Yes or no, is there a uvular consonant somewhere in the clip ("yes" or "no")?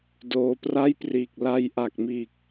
no